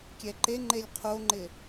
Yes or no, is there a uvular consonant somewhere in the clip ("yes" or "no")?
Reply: yes